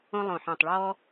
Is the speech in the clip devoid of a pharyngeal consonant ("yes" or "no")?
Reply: no